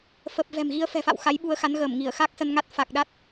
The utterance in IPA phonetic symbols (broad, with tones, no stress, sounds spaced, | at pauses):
f ə˨˩ p̚ v ɛ̤˨˩ m ɣ i˧ ə̯ f ɛ̤˨˩ f a̰˧˨ w x a˨˦ j ɓ u˧ ə̯ x a˨˦ n ɣ əː˧˩ m ŋ i˧˩ ə̯ x a˦˥ k̚ s ə˧ n ŋ a˦˥ t̚ f a˨˩ k̚ ɗ a˦˥ t̚